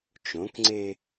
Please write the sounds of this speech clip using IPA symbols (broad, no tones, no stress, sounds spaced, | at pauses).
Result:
t͡ʃ õ k ŋ͡ǀ e